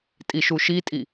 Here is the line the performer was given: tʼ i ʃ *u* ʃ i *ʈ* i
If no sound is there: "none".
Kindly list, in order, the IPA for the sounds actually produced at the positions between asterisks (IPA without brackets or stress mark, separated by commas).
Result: u, tʼ